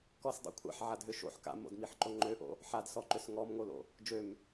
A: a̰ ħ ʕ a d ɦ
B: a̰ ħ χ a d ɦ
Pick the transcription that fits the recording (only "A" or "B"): A